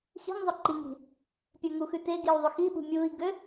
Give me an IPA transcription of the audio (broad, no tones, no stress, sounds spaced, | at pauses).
x i̤ ŋ zˤ ɵ ǃ i ŋ i̤ | pʲ ə˞ ŋ u x ʉ t e ɡ i u̯ ðˤ ø x i ɓ ṳ mʲ uː i̯ ɡ ø